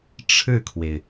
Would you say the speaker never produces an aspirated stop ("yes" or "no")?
no